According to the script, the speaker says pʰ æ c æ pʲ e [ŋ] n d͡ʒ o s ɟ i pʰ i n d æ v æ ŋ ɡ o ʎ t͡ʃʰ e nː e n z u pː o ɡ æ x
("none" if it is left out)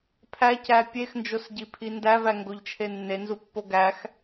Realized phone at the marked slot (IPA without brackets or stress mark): x